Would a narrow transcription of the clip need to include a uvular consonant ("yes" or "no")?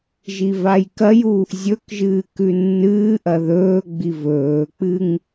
no